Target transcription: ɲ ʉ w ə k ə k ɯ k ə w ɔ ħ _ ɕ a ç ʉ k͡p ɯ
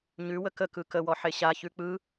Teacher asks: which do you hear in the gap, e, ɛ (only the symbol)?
e